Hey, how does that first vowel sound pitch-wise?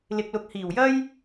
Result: low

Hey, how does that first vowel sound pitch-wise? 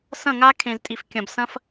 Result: falling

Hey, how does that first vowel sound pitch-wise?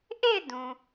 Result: falling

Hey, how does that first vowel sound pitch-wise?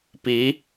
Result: rising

